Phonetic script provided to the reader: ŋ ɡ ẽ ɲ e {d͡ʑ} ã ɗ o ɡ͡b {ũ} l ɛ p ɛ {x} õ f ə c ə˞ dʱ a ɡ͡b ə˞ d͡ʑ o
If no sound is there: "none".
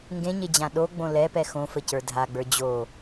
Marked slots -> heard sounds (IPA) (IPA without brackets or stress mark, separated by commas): d͡ʑ, õ, x